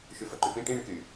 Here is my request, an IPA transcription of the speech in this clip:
ʃ y f ɐ ǃ y p ĩ ʈ ĩ ɳ ɛ k y

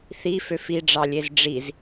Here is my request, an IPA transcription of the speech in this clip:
θ i f ø f i ɖ͡ʐ ɑ lʲ e z ɖ͡ʐ i z

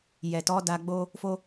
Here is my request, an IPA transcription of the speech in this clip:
j ɛ˨ t ɔ˨˦ d a˧ ɡ͡b o˦ | f o˦

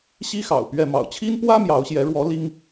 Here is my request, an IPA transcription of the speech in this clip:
ɕ i˥ x ɑ̰˨˩ ʊ̯ p ɥ ɛ˥˩ m ɑ̰˨˩ ʊ̯ t͡ɕʰ i˥ n p w ä˥ m j ɑ˧˥ ʊ̯ ɕ j ɛ˧˥ ɻ w ɔ˧˥ l i˥ ŋ

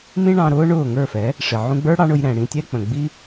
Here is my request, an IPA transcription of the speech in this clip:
m ĩ˦ ɳ ɑ̃˧ ɾ ʊː˦ ɳ ʊː˦˨ ŋ ə˞˦˨ f ɛ˨˦ | ʂ ɪ˨ ʕ ũ˧ ɡ͡b ə˞˦ ɽ ɑ˦ ɳ ʊ˧ j ɾ ɛ̃˨ ɽ ĩ˧ tʲ ɛ˦ k͡p ə̃˨ ɡ͡b i˦

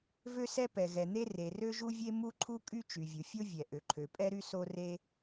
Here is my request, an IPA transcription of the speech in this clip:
v ø˥ s ɛ˥ p ɛ˩ ɣ ɛ˩ n̪ e˥ r e˩ r ø˥ ʒ u˥ vʲ e˥ m u˥ ǃʰ u˥ kʼ y˥ t͡ʃ y˩ vʲ u˩ fʲ o˥ vʲ ɛ˩ ʔ ø˩ ǃʰ ø˩ pʼ ɛ˥ ɾ y˥ s o˥ r e˥

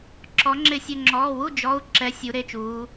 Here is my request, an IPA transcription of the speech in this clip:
ǁ ɔ˩˧ ŋ͡ǁ ɪ˧˩ sʲ ʊ˧˩ ŋ͡ǁ ɔː˩˧˩ w u˥˩ d͡ʒ ɔ˩˧˩ u̯ ǁ ɛ˩˧ sʲ u˩˧ ɾ e˩˧˩ t͡ʃ uː˩˧

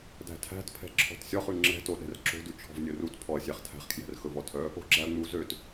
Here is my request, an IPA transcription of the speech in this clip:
d æ̤ tʰ æ̤ t pʰ ɛ̤ ǁʰ ɔ̤ t sʲ ɔ χ ʉ ŋ͡ǁ ɛ̤ t o ɗ ɛ̤ r ǁ o̤ d ʉ t͡ʃʰ ɔ̤ v nʲ ɵ r u t pʰ ɔ ɐ̯ sʲ æ χ tʰ æ̤ χ kʰ j ɛ̤ r x ɵ v ɔ tʰ œ | o̤ ɡ͡ǁ æ ɐ̯ ŋ͡m u z ø t

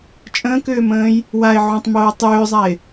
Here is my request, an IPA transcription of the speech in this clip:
t͡ʃʼ ə̃ː k ʏː m ə̃ː j | w a ɪ̯ ʕ ũ tˤ m oː tˤ ʏː zˤ a ɪ̯

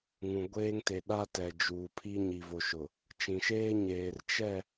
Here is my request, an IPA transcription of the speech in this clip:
ŋ ũ˨ ɡʷ eː˦ ŋ t e˨ ɗ a˦ t ɛ˨ d͡ʒ uː˨ pʰ i˦ ɲ i˨ v o˨ ʃ ʊ˨ | t͡ʃ ĩ˨ ʃ eː˦ ɲ eː˨ r t͡ʃ ɛ˦˨

